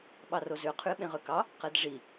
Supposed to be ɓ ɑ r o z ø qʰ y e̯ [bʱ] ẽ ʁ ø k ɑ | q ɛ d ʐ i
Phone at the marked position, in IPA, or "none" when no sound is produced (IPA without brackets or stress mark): ɓ